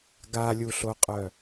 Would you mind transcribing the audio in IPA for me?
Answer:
ɡ a lʲ u ɬ o qʼ œ

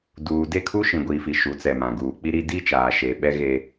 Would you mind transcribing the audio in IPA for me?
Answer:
d uː˨ d e˦˨ kʰ u˦ ʃ ĩ˨ ɡʷ iː˨ f i˨ ʃ u˨˦ t͡s ɛ˨ m ã˨ ɡ uː˨ k͡p i˦ ɾ i˦ d i˦ t͡ʃ aː˨ ʃ eː˨ ɓ ɛ˦ ɣ e˦

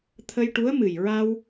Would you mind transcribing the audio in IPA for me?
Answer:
t̪ʰ ə˧ j ʈ u˧˥ ə̯ m ɨ˨˩ j ɹ a˧ w

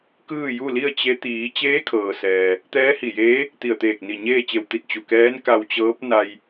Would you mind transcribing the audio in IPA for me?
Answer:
k ɯː˥˨ j u˥˨ l i˥˨ ə̯ t͡ɕ e˧˥ t̪ iː˩˧ t͡ɕ eː˧˥ kʰ ɤː˩ s ɛː˩ | t̪ ɛː˧˥ h i˧˩ j eː˧˥ | t̪ i˧˩ ə̯ t̪ eː˧˩ k̚ n i˧˩ ɲ eː˥˨ t͡ɕ e˧˩ w t̪ i˧ t̚ t͡ɕ u˩ k ɛː˧˥ n k a˧ w t͡ɕ ɤː˧˥ p̚ n a˧ j

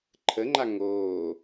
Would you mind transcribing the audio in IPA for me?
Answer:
ǃʰ ə ŋ͡ǃ a ŋ oː

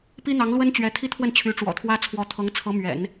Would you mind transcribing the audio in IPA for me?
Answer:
p i˥ n̪ ɑ˧˥ ŋ l w ə˥ n t͡ɕ ɥ ɛ˧˥ t̪ʰ i˥ t̪ʰ w ə˥˩ n t͡ɕʰ y˧˥ ʈ͡ʂ w ɔ̰˨˩ t̪ʰ w ä˥ t͡sʰ w ɔ˧˥ t̪ʰ ɤ˧˥ ŋ t͡sʰ ɤ˧˥ m ɥ ɛ̰˨˩˦ n

